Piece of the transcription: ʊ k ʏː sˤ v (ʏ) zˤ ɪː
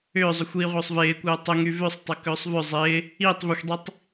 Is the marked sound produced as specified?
yes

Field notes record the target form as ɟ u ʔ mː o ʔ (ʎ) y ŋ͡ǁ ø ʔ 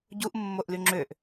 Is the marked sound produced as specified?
no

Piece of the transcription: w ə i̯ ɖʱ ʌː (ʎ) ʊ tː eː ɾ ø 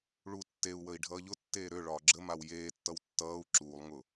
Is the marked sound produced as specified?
yes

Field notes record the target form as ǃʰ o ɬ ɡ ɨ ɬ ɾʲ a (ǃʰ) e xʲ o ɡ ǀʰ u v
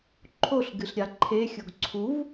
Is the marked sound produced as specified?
yes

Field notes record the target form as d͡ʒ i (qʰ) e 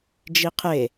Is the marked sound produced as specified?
yes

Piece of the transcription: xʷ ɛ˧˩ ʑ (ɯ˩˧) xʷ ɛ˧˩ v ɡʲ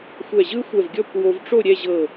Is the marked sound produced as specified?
no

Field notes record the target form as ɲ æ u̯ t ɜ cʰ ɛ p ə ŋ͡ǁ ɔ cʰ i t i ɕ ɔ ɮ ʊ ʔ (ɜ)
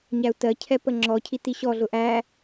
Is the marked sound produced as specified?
no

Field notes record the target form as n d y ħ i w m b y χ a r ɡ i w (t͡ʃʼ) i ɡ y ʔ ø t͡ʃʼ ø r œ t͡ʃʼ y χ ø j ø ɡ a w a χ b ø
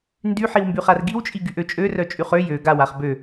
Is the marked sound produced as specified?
yes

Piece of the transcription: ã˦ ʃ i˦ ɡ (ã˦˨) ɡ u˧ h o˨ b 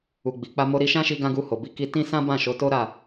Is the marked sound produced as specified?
no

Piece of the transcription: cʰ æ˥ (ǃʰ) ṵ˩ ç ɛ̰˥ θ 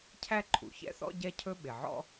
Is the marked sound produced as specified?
yes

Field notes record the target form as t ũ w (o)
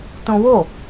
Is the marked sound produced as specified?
yes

